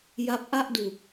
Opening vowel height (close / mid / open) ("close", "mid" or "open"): open